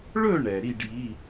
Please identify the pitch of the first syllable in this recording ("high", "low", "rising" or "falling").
falling